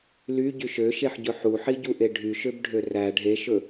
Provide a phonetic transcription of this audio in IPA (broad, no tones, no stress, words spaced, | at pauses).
lyɟyʃ øʃeħɟɵ ħuħiɟuʔe ɖʱyʃøbɖʱø ræ ɖʱeʃɵ